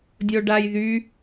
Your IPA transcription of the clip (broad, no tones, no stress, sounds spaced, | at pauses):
dʲ o ɖ a j ð y